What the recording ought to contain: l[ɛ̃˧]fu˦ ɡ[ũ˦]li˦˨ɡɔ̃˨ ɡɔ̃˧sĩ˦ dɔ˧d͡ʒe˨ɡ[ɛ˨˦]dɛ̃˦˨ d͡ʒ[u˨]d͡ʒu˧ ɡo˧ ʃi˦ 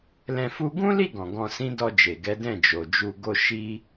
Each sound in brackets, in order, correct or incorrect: correct, correct, correct, incorrect

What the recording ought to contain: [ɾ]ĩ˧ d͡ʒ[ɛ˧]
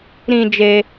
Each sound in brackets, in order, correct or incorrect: correct, incorrect

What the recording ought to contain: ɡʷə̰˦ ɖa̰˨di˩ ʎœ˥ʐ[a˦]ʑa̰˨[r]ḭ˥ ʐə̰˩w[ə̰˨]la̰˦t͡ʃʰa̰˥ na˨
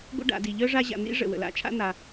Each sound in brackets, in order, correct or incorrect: correct, incorrect, incorrect

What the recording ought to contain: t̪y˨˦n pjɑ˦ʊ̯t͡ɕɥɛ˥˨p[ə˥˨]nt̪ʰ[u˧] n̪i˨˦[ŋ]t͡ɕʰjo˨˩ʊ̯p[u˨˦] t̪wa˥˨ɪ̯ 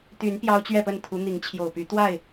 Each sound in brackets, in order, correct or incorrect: correct, incorrect, correct, incorrect

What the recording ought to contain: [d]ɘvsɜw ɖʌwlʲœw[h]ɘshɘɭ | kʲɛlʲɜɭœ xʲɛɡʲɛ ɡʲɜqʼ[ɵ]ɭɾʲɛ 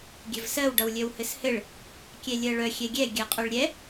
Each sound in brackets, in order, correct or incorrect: incorrect, correct, incorrect

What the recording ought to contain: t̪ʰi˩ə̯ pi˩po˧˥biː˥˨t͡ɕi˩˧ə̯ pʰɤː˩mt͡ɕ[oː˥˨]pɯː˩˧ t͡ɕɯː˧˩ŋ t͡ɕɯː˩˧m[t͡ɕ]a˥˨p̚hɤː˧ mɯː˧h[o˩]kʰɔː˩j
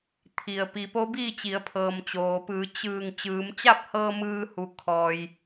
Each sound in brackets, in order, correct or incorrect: incorrect, correct, incorrect

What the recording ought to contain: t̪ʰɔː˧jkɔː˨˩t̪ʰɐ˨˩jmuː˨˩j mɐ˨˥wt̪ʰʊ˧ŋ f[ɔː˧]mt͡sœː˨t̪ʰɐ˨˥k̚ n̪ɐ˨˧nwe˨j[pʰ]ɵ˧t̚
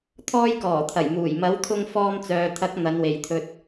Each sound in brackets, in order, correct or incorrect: correct, incorrect

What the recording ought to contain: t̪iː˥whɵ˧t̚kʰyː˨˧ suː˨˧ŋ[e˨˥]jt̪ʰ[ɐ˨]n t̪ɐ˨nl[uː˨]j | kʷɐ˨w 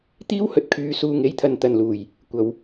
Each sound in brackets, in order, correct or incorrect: correct, correct, incorrect

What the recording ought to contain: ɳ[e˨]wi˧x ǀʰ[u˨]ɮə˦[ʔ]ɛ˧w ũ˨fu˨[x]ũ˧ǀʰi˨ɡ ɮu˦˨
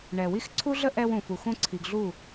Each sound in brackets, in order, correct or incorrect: incorrect, incorrect, correct, correct

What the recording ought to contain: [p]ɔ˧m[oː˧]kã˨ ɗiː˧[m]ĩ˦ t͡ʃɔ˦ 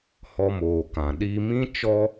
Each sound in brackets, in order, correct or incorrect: incorrect, incorrect, correct

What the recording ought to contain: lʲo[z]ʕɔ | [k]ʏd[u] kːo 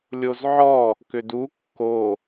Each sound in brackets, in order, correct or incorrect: correct, correct, correct

